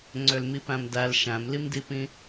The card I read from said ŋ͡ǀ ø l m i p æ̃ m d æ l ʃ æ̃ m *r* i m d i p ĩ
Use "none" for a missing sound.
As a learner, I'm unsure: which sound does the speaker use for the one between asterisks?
l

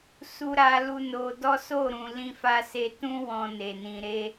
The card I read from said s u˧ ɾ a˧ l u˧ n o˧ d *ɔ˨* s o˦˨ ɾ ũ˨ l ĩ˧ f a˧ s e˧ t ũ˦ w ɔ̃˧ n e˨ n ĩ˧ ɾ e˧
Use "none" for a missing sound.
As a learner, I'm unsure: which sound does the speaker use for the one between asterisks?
ɔ˦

